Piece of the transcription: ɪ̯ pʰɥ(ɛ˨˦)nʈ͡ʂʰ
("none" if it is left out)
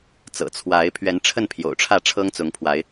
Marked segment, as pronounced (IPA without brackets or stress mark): ɛ˨˦